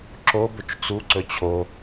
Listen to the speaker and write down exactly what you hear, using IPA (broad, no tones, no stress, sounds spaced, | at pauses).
ǁ o b ɵ t͡ʃ t͡s u ǀ ɵ t͡ɕʰ o